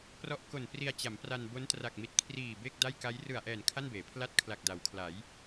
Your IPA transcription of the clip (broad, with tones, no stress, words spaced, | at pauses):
prɔ˦˥ʔko˨˩npri˧a̯t͡ɕa˩˦m pra˧nbo˦˥n tra˨˩k̚mi˨˩t̚ kʰriː˨˩ be˥˩k̚da˥˩j ka˦˥j rɯ˨˩a̯ʔɛː˨˩n kʰa˥˩nbeː˩˦pʰla˥˩t̚ kʰla˨˩k̚da˩˦wkʰla˩˦j